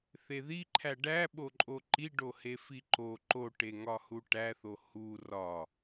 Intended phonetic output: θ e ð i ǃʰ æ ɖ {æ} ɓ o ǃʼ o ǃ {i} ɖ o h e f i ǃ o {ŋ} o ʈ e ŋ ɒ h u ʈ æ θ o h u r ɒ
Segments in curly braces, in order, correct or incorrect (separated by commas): correct, correct, incorrect